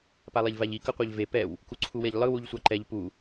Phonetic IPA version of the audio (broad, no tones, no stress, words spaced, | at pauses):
palˠeʎvaʎi kʌqʷaʎve pɛw | kuǀʰuweʎlˠɯ wuʎsʷaǃɛʎ pu